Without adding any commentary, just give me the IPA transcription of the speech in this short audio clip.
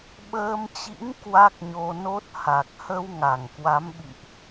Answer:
ɓəː˧mt͡ɕḭ˧˥ŋ kwa˦˥k̚ɲo˧no˦˥t̚ ha˨˩k̚hə˧w ŋa˧˩ŋkwa˨˦mɓḭ˧˨ʔ

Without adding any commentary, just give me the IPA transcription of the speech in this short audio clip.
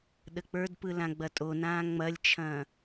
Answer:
ɗək͡pə˞dpɯ lãɡ͡bɐtʼonãː ŋ͡mɐlʲt͡ʃʰɐ̃ː

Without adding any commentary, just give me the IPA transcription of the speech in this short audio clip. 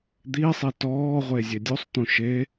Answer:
d̪isˤi tɔːʁʷe zʲedʲusˤt̪ũ ʃe

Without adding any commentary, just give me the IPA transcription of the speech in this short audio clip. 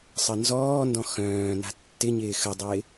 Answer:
sˤənzɔːndɔ̃ xœ̃ːna̤ tːɪɲɪː xədˤɪː

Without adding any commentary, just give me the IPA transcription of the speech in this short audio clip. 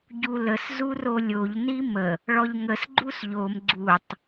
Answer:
ɟuləs zurolʲoʎ nimə | ɭɔʎŋəs ɡ͡ǃusʎom ɡ͡ǀutˤ

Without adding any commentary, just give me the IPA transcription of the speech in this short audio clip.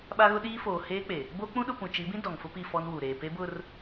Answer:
ɓa˦ɣʊ˦ ɗiː˦ foː˨ heː˦k͡pe˨ | bo˦k͡pũ˦ɗʊ˦˨ pũ˨t͡ʃi˨˦bĩ˦ dɔ˨ŋfʊ˦pi˦˨ fɔ˦nwu˨ ɾeː˨pe˦bʊ˦˨r

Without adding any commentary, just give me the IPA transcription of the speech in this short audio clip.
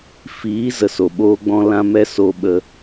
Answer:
fiː˨˦ zə˨so˨ɓoː˧ɡ͡bɔ̃˧ lã˧mɛ˧ so˨ɓə˨

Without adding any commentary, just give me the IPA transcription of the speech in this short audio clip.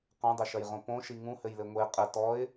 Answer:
qõdˤɘʃɐjʁõ põʃi ŋũhɘjlɘ ŋʷe qʼɘ tɔɪ̯

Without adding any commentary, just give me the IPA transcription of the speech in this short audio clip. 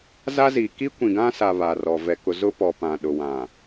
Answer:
za˦ziː˨ ki˦ kʷĩ˨ɡã˦sa˨ βa˨rɔ˨ vɛ˨kʊ˨zʊ˦pɔ˨ pã˨ɗʊ˨wã˨

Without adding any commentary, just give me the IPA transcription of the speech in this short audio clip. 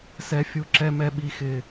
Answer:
sɛ˦fʲu˦ ǁɛ˦mɛ˦ɓi˦xɪ˦

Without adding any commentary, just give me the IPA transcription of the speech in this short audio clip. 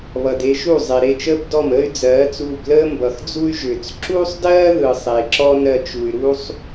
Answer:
βʌ˩de˧ʃu˥˩zˤe˩ ɾe˥˩t͡ʃəː˥b dɔ˥˩məː˥y̯d͡zɜː˩˥t͡suː˧b ləː˥mbʌ˩xd͡zu˥y̯ ʒʏ˩t͡s ǁuː˥sˤdɜː˥ðɯ˩ sˤe˩ǁɔ˥ nɜ˧t͡ʃu˩y̯ɾuː˥sˤ

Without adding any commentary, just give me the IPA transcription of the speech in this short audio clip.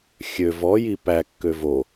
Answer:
xʲø vɔji pækːø vo

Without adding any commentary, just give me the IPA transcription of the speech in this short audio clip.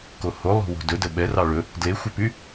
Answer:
koho lˠo̤wo̤dɵ dəɓɛrɑ ɭɵ | dlexʷɛpy

